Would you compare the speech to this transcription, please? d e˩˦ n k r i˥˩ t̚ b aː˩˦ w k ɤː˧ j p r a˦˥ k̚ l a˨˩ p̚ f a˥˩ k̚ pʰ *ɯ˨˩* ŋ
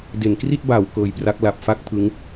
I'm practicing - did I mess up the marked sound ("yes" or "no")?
yes